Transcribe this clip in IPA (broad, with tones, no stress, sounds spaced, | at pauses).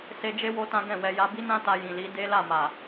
s e˧ d͡ʒ e˦ w o˦ t ã˦ ɡ ɛ̃˦˨ w ɛ˧ j a˧ b i˦ n ã˦ t a˧ j ĩ˨ l i˨˦ d e˦ l a˦˨ m a˨